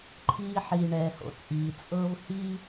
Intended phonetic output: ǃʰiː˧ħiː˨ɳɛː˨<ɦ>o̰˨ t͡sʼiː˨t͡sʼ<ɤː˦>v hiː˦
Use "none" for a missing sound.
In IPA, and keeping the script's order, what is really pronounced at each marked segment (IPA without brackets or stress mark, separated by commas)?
h, ɤː˦